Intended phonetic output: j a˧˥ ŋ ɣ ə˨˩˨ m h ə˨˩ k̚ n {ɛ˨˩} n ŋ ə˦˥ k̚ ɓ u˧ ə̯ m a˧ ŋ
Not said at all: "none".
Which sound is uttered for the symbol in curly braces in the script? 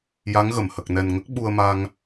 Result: ɛ˨˩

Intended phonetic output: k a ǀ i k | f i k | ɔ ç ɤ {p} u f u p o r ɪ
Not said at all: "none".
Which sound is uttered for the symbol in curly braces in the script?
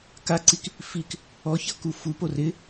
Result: k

